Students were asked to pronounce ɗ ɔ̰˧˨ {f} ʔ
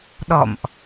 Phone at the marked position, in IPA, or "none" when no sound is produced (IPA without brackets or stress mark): m